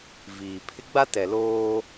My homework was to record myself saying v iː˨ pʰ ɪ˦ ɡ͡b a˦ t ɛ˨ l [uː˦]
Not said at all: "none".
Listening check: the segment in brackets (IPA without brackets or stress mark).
oː˦